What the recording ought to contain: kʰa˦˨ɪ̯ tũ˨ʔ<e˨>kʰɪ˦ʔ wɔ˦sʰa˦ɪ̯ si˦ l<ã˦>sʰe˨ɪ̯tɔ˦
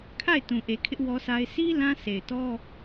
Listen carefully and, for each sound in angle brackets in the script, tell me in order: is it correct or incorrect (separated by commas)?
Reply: correct, correct